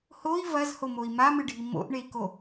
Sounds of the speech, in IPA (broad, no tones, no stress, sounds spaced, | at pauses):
h o i̯ v ɐ z h o m o i̯ m a m ɨ ɖʱ i m o̰ ʔ ɳ e i̯ k o